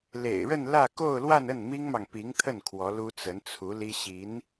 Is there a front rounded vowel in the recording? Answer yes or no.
no